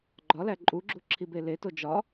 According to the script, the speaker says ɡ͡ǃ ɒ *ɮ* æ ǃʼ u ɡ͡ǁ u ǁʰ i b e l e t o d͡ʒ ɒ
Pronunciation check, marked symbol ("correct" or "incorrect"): incorrect